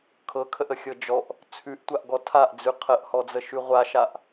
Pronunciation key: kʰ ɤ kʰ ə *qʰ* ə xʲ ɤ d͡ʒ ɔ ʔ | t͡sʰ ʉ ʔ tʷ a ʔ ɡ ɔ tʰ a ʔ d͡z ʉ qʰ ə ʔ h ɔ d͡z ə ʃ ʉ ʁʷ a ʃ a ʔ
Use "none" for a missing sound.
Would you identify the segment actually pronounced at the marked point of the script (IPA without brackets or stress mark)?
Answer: ʔ